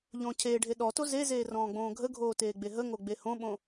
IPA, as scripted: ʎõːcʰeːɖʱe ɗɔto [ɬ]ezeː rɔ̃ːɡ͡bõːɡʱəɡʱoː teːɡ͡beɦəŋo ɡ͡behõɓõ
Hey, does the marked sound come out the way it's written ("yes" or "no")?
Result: no